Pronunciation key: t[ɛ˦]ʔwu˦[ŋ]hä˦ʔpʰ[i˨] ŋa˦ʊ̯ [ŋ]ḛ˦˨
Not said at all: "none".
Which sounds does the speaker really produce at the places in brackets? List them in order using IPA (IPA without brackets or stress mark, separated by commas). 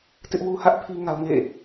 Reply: ɪ˦, none, i˦, ŋ